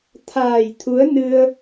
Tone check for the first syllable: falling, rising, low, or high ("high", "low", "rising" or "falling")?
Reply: low